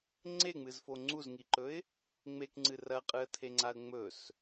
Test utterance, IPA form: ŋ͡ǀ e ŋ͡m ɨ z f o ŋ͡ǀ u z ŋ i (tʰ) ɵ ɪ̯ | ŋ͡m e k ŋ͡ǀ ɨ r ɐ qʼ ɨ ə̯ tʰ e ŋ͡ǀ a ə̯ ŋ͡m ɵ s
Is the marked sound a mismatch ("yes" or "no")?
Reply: yes